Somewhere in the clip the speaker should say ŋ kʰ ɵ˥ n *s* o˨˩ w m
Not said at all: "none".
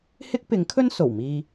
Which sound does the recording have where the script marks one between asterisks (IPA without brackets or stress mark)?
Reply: s